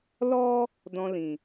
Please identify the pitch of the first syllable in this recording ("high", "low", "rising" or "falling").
high